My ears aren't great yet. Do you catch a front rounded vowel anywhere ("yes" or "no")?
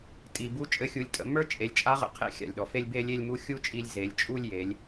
no